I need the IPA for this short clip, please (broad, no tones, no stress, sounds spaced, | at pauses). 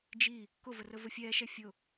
d͡ʒ i | k ʊ v ə r ə v ə fʲ ɛː ʃ ɛ fʲ ʊ